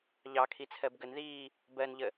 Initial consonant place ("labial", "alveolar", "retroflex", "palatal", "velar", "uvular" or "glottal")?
palatal